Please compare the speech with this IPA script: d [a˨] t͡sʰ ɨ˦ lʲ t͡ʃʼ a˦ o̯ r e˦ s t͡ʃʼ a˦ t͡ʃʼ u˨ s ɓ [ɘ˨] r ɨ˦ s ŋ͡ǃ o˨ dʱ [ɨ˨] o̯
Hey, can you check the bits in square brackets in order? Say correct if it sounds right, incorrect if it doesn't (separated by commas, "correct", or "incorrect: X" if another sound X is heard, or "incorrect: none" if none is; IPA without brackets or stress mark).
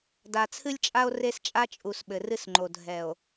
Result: correct, correct, incorrect: ɛ˨